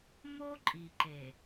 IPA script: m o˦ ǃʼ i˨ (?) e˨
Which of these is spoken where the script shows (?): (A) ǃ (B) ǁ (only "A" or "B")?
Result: A